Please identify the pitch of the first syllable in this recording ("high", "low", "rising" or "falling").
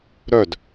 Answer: falling